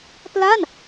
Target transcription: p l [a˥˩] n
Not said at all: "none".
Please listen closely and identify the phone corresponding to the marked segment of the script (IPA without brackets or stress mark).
a˥˩